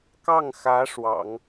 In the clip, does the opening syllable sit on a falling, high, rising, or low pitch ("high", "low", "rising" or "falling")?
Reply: falling